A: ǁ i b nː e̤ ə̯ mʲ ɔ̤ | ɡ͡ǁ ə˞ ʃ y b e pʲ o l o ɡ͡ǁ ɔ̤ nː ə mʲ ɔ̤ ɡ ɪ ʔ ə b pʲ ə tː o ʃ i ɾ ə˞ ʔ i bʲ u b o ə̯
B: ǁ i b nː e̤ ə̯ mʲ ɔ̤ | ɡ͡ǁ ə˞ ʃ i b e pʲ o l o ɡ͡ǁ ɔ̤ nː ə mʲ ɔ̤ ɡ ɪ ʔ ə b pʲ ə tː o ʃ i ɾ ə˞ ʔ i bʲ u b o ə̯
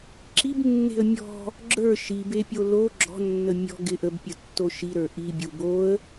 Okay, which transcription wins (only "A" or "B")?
B